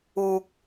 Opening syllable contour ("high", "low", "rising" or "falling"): low